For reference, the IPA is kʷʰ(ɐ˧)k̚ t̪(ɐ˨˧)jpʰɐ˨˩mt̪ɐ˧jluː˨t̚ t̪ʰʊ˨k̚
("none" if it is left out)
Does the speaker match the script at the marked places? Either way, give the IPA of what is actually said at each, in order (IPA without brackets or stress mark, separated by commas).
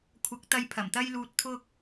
ɐ˨˥, ɐ˨˧